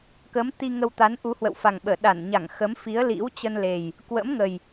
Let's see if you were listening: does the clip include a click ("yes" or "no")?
no